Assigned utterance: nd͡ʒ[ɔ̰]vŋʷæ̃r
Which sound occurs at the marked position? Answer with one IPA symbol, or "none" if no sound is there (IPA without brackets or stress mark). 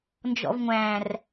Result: ɔ̰